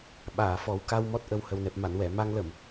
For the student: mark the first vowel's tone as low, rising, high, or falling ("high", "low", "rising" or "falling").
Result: low